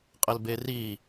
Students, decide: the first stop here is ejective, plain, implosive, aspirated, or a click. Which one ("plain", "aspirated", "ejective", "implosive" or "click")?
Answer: ejective